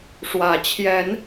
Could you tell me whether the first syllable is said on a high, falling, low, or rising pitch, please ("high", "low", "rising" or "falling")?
low